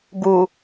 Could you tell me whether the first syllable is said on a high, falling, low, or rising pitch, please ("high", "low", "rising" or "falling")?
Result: low